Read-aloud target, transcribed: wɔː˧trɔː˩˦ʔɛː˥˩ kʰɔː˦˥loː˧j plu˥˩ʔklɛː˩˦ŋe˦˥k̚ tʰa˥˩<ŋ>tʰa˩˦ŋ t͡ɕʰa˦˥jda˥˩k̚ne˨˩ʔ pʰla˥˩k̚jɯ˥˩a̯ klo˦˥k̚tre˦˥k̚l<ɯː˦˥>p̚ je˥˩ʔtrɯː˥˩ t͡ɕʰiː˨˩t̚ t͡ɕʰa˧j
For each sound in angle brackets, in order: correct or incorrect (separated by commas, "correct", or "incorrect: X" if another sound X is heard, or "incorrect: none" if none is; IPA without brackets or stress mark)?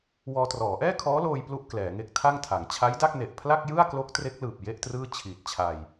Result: correct, incorrect: ɯː˨˩